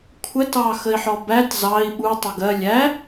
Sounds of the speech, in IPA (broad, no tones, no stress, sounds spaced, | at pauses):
kʷʰ ə t ɑ x ə i̯ ħ ɔ b æ t z ɑ i̯ ɓ u tˤ ʌ ɡ ɜ lʲ æ